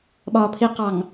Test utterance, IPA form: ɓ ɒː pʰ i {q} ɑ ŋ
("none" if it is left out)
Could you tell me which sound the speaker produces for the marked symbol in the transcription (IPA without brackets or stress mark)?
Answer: q